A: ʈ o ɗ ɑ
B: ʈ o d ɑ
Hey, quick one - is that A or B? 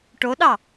A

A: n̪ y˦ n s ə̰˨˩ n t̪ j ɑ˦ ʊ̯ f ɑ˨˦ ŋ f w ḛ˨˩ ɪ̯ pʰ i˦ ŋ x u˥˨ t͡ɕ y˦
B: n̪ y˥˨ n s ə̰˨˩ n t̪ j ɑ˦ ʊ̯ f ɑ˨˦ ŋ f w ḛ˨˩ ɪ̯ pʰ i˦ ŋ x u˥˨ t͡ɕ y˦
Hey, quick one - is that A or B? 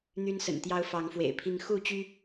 A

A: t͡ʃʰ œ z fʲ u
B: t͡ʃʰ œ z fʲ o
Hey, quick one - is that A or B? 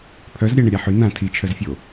B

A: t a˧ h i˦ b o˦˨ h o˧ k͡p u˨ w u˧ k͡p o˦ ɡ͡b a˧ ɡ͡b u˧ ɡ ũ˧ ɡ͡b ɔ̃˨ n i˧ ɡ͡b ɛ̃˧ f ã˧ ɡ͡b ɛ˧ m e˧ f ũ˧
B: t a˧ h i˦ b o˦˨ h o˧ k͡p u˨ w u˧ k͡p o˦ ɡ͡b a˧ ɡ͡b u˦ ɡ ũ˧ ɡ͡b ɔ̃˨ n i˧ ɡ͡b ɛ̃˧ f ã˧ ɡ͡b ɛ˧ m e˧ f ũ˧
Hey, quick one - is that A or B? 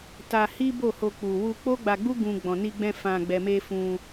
B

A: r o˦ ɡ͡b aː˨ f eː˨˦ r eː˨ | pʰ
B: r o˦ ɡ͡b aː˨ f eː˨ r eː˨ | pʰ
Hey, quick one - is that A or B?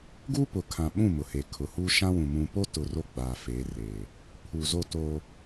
A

